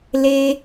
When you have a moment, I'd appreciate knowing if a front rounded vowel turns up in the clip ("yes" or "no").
no